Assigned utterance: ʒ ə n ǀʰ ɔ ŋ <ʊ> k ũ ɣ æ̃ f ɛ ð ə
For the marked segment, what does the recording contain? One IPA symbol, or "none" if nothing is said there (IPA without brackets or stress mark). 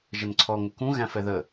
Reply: ʊ